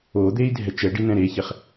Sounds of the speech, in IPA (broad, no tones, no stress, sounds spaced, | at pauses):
o d̪ e i̯ dʱ ɛ t͡ʃ ɛ ɖ i n ɛ̃ ɾ e ç e χ